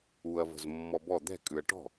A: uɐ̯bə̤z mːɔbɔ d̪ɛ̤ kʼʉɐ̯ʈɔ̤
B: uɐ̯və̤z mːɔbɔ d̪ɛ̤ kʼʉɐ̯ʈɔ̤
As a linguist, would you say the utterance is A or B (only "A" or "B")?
B